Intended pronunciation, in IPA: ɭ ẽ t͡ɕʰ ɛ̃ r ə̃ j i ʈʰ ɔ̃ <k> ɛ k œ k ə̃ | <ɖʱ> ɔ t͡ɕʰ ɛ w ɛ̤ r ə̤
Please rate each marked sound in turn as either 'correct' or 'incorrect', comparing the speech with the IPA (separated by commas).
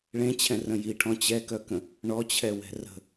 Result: incorrect, incorrect